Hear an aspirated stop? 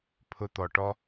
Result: yes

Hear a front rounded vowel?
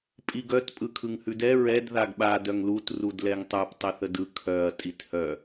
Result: yes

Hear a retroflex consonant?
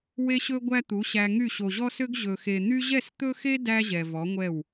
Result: no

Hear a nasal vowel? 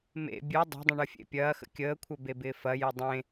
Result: yes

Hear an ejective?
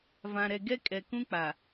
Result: yes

